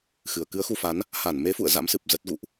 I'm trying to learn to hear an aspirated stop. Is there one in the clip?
no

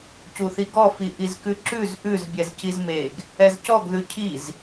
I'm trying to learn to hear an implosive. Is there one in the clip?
no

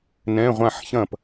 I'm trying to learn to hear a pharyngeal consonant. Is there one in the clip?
yes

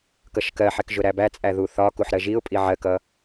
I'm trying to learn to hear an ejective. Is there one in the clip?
yes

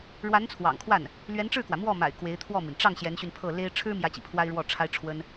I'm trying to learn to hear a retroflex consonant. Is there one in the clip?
yes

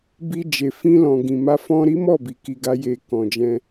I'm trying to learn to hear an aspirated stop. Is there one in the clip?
no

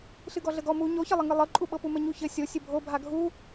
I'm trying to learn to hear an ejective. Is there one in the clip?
yes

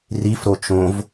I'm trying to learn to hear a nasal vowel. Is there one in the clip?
yes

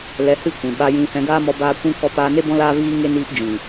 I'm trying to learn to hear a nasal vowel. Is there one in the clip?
yes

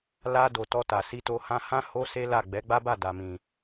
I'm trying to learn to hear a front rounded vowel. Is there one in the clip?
no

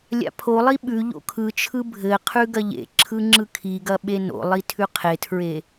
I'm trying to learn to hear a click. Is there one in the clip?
yes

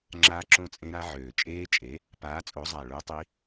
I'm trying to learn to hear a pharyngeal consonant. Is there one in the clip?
yes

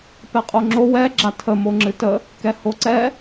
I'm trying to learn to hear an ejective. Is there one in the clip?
yes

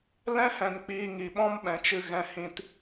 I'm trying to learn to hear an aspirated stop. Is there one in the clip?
no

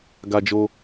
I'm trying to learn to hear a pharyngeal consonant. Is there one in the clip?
no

